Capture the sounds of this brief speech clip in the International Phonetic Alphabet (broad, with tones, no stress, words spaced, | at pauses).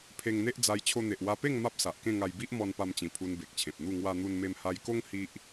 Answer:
pʰe˧ŋn̪e˦ʔd͡za˧j t͡ɕʰo˧n̪e˨ʔ wa˧pe˥˧ŋ ma˦p̚sa˨ʔkẽ˥˧ŋa˧j bi˦ʔmɔ˧npa˧mt͡ɕĩ˨˩ pʰu˧nbe˨k̚t͡ɕʰẽ˨p̚n̪u˥˧ ŋwa˧n̪u˧nme˧m ha˧jko˦ŋ hi˦ʔ